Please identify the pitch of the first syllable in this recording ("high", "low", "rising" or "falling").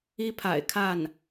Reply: high